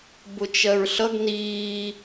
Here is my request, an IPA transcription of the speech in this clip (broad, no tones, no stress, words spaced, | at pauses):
bʊt͡ʃɜɹɬʌɡ niː